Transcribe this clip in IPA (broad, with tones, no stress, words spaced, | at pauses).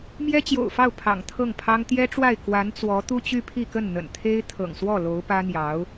mjɛ˥t͡ɕjo̰˨˩ʊ̯fɑ˥˩ʊ̯ pʰɑ̰˨˩ŋt̪ʰɤ˥˩ŋpʰɑ˥ŋ t̪jɛ˥ʈ͡ʂwa˥˩ɪ̯ kwa˧˥nt͡swɔ˧˥ t̪u˥t͡ɕy˥pʰi˥˧kə˥˩n n̪ə̰˨˩nt̪ʰe˥ɪ̯ t̪ʰɤ̰˨˩ŋswɔ˥˩ lo˧˥ʊ̯pä˥n̪jɑ˧˥ʊ̯